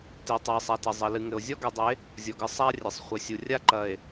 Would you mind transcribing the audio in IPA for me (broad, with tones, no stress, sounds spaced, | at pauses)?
t e˨ tˤ ɨ˨ e̯ sˤ a˨ t ɐ˨ zˤ ɐ˨ l ɨ˨ ŋ ɘ˨ o̯ zʲ ɔ˦ ɡ ɛ˨ dˤ e˨˦ | zʲ ɔ˨ ɡ ɨ˦ sˤ a˦ rʲ ɘ˨ sˤ χʷ ɘ˨ sʲ u˨ rʲ a˦ ǃ ɐ˨ e̯